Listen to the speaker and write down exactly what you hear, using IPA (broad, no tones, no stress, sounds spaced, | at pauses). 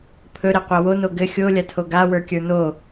pʰ ɵ ɾ ɛ qʷ a w o n o ɡ ɘ xʲ o lʲ a tʰ o ɡ a w ə˞ kʲ ə˞ n o